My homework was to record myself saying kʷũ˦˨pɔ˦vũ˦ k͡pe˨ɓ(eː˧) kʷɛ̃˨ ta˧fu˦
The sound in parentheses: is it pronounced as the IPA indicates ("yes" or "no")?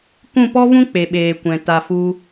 no